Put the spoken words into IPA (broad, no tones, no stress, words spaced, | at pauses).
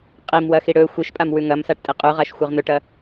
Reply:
qʼimwɐxi ɽɵ xʷiʃpʼam wʉŋɐmsaʈ tʼiqʼʉʁaʃ xʷeʁn̪ɵʈɐ